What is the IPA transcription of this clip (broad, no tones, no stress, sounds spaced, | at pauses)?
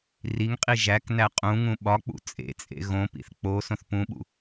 r i ŋ qʼ i ʒ æ k n æ qʼ ũ ŋ ũ ɓ ɒ k͡p ṵ t͡sʼ ḛ t͡sʼ ḛ ɣ õ p ḭ θ k͡p o s õ θ p ũ ɓ ṵ